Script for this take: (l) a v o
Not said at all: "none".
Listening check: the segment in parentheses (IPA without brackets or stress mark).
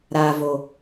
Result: ɾ